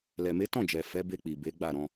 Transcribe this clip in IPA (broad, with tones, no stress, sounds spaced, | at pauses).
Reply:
l ɛ˨ m e˨˦ t ɔ̃˦˨ d͡ʒ ɛ˨ f ɛ˨˦ b e˧ k͡p i˨ b e˨˦ ɡ͡b a˦˨ ɾ ɔ̃˧